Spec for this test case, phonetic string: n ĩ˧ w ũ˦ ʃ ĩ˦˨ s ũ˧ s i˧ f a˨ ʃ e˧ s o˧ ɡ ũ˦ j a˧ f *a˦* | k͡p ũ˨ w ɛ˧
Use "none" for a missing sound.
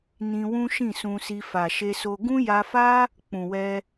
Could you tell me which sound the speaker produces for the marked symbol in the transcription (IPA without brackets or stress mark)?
a˦